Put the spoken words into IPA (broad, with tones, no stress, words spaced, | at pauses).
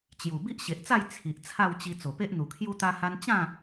t͡ɕju˨˩ bi˦ʔɕe˨ʔt͡sa˥˧j t͡sʰi˨ʔ t͡sʰa˥˧wt͡ɕi˧ t͡so˨˩pe˦ʔn̪u˨˩kʰju˦ t̪a˧ha˧n t͡ɕã˥˧